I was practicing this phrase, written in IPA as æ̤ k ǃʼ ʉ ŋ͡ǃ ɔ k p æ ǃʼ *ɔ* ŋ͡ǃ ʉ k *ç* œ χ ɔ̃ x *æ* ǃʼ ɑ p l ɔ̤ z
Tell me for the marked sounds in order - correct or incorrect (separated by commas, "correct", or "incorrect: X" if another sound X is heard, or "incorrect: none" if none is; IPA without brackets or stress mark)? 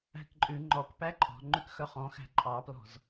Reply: incorrect: ɔ̤, incorrect: x, incorrect: æ̤